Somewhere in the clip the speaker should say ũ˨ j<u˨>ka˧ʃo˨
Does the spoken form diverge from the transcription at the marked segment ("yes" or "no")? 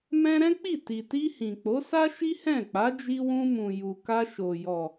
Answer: no